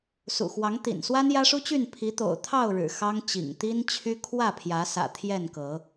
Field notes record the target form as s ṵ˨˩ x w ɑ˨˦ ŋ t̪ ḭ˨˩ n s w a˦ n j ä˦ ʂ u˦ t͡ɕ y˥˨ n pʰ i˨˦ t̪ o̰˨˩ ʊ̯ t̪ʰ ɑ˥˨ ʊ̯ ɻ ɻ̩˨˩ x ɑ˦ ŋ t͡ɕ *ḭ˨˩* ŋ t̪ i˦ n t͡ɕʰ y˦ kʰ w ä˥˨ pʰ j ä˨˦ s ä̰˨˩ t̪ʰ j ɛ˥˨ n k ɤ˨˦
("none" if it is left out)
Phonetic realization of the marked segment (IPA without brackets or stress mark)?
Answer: ḭ˨˩